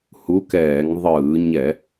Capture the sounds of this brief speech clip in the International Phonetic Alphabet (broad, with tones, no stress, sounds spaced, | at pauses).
h u˧˥ k ɛː˧˩˧ ŋ ðˤ ɯː˧˩˧ ɲ ɛ˧˩˧